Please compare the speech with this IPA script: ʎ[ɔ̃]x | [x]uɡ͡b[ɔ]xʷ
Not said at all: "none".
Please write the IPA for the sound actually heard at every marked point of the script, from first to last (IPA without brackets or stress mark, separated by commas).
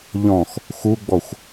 ɔ̃, x, ɔ